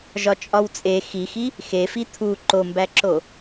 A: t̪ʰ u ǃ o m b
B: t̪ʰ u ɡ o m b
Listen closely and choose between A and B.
A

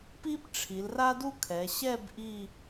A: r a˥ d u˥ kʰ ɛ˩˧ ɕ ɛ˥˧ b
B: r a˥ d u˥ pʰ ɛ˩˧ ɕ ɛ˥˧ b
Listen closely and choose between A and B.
A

